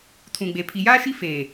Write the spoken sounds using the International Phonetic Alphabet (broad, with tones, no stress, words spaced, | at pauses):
tʰũ˨ɡ͡be˨ pʰi˨jaː˦ʃi˦ feː˨